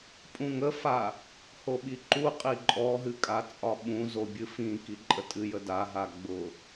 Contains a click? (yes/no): yes